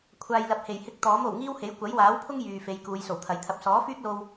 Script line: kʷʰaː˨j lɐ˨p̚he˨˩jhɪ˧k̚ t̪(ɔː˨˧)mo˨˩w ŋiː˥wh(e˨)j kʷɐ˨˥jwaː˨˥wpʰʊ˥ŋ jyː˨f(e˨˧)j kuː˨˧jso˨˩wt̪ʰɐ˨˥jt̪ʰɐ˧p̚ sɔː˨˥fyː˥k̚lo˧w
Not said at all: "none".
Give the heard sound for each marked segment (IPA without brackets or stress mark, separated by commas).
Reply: ɔː˨˥, e˨˥, e˨˧